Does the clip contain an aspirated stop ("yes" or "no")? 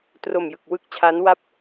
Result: yes